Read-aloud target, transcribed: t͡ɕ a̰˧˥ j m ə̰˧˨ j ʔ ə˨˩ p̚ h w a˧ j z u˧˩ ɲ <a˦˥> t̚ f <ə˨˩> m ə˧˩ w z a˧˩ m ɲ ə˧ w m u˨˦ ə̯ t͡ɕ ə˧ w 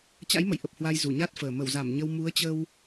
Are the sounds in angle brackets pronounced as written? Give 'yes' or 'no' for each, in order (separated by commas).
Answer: yes, no